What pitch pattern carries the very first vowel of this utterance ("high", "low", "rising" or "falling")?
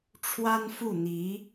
high